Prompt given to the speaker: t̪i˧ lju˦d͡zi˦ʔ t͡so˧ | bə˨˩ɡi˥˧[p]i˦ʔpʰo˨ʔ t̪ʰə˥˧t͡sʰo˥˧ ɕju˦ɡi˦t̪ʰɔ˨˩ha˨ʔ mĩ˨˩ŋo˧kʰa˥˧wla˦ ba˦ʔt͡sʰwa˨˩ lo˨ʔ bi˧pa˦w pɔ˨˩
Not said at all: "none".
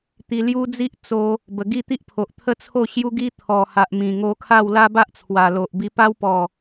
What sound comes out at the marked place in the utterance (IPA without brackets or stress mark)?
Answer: t̪